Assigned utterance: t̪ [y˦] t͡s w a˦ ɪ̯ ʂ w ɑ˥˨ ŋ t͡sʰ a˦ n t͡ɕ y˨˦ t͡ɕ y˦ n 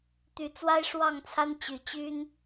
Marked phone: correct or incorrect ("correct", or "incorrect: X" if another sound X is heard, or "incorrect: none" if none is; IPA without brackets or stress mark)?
incorrect: y˨˦